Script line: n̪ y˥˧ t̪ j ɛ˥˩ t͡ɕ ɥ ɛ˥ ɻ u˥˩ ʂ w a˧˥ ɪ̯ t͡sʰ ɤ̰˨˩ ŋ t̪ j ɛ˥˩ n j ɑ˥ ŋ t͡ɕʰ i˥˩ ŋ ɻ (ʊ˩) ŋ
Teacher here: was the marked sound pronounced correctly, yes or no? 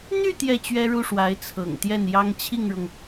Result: yes